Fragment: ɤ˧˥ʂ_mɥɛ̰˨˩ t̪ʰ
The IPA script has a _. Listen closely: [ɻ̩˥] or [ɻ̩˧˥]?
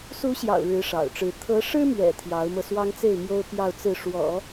ɻ̩˥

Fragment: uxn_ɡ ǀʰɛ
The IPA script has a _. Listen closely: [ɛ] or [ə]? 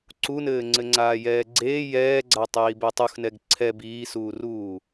ɛ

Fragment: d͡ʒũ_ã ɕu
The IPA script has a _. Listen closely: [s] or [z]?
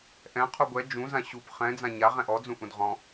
z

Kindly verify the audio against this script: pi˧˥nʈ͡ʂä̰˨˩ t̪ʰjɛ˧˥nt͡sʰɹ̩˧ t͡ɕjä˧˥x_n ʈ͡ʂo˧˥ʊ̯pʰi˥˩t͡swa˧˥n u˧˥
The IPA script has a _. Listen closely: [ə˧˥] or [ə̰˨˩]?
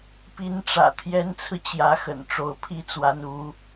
ə̰˨˩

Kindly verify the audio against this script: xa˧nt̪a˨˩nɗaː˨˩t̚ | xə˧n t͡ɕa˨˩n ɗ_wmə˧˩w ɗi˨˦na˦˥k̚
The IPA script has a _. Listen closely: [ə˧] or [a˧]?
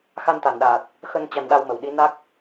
a˧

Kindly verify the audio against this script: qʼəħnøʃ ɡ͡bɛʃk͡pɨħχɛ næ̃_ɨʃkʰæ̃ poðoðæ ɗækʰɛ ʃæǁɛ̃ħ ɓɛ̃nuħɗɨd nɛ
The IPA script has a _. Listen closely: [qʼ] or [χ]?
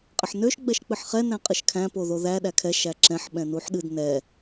qʼ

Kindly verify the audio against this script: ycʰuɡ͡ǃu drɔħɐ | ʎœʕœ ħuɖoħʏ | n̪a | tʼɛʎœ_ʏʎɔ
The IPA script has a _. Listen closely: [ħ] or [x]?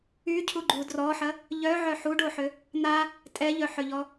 ħ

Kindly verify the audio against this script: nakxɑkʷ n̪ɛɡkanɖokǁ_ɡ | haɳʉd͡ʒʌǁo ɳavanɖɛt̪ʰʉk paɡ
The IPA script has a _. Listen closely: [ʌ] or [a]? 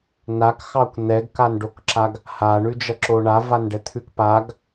a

